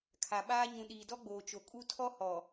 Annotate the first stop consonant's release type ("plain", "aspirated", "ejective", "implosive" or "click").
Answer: aspirated